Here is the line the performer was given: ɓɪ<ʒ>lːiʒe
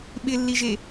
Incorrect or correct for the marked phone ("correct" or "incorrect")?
incorrect